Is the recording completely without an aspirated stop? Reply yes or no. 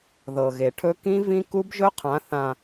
no